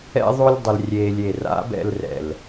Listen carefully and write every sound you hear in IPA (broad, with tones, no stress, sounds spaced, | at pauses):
ɛ̰˦ ðˤ o˦ lʲ dˤ ʌ˧ l rʲ eː˧ lʲ e˨ r a̰˨˦ b ɛ̰˧ l r ɛ̰˨ l